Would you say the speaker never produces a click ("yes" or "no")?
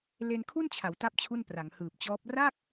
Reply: yes